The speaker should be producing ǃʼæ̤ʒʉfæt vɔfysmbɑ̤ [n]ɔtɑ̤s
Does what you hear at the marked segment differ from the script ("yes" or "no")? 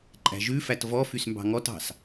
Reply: yes